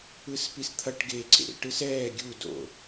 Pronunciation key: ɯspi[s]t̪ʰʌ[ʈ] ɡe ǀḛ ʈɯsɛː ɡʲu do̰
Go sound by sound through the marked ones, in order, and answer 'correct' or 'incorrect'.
correct, correct

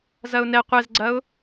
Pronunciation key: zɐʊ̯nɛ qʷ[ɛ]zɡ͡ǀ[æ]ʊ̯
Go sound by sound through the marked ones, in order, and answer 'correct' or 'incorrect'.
correct, incorrect

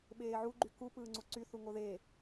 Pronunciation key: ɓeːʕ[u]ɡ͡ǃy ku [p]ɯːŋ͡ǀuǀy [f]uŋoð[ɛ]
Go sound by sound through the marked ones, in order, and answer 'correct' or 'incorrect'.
correct, correct, incorrect, incorrect

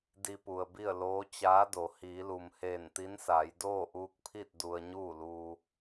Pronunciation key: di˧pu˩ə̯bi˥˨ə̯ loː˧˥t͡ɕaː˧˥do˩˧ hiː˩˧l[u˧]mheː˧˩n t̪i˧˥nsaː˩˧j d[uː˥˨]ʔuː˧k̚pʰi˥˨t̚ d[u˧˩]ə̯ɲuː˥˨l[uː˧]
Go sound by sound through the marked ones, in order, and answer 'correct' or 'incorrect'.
incorrect, incorrect, incorrect, correct

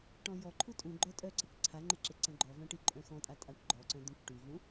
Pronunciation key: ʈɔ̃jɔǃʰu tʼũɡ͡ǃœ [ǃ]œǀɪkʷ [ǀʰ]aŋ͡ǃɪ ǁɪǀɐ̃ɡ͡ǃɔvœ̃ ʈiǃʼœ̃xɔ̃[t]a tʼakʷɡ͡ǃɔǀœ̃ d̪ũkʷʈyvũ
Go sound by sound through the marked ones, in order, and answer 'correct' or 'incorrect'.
incorrect, correct, incorrect

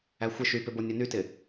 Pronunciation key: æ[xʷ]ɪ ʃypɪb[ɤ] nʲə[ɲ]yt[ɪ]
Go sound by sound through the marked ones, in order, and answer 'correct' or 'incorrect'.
correct, incorrect, incorrect, correct

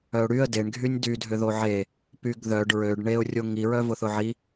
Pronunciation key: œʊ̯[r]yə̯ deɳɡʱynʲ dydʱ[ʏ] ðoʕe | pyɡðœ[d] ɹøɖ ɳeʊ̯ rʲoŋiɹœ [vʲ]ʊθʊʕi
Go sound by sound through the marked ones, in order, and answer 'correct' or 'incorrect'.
incorrect, correct, incorrect, incorrect

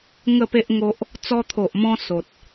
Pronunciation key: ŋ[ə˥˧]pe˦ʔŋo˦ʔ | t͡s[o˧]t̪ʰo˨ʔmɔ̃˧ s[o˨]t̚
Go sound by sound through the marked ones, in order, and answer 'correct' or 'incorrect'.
correct, incorrect, correct

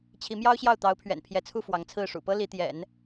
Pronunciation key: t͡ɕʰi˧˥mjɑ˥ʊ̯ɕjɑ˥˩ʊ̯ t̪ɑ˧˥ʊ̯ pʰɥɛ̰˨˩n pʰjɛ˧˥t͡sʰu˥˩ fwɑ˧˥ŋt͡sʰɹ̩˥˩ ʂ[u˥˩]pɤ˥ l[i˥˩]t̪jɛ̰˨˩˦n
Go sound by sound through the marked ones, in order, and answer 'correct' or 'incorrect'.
incorrect, incorrect

